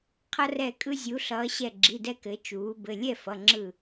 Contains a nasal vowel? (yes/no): no